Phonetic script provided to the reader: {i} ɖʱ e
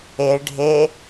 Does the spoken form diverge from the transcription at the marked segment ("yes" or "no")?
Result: yes